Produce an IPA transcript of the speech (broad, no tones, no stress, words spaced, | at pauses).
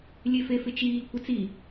lʲefefɪt͡ʃiː kʷɪt͡si